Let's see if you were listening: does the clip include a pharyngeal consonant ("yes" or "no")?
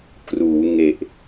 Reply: no